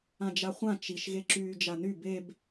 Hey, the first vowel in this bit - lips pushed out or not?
no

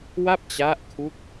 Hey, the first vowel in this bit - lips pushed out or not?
no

